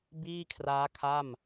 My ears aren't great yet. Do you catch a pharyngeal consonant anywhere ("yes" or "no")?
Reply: no